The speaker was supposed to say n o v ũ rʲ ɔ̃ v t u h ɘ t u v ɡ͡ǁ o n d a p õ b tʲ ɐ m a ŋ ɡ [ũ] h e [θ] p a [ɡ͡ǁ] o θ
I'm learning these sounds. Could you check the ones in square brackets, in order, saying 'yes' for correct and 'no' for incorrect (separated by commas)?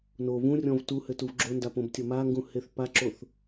yes, yes, no